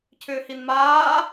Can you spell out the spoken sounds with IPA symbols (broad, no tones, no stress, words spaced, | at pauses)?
cʰʏːhinmaː